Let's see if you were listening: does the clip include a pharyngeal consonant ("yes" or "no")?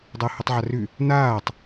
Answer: yes